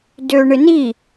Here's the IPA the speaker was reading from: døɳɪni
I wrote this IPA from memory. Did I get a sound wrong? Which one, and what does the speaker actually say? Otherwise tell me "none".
none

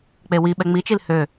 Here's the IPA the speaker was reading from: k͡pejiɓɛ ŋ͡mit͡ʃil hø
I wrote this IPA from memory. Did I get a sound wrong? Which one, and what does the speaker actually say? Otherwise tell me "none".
j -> w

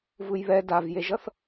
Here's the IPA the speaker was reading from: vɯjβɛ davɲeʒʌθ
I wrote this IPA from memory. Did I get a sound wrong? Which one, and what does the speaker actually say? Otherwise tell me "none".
ɲ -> j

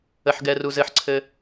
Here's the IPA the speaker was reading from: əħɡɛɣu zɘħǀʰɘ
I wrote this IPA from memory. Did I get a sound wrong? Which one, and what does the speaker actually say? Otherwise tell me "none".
ɣ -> r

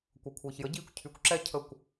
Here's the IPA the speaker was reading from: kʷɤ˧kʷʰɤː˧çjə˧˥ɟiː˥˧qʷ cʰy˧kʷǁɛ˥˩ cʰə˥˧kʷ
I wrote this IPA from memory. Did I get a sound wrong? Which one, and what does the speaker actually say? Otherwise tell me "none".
qʷ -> kʷ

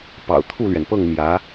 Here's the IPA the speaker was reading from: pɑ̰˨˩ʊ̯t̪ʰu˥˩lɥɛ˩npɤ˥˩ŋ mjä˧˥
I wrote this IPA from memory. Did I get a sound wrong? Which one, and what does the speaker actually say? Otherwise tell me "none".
none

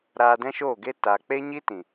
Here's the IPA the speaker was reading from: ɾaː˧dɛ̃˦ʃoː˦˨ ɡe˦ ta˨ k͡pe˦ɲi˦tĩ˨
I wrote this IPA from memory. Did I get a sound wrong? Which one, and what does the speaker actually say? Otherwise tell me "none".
none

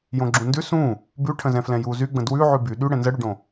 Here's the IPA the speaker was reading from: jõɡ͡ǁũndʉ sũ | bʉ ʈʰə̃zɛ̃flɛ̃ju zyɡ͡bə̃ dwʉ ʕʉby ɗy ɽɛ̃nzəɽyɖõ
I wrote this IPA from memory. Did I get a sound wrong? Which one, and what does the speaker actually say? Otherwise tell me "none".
none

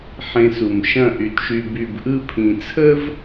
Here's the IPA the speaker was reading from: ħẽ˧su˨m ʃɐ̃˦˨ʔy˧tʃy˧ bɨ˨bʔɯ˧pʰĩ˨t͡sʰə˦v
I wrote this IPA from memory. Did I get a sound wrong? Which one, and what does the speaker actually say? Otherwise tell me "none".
ɨ˨ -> y˨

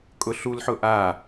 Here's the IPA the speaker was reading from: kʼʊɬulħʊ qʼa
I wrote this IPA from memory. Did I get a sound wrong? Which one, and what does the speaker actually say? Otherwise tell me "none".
qʼ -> ʔ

